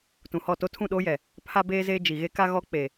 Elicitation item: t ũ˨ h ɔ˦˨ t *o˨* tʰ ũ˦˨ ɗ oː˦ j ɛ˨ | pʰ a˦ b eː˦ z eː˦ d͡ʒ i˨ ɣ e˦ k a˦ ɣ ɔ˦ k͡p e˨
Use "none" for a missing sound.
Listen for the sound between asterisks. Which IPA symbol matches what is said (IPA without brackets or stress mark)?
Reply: o˦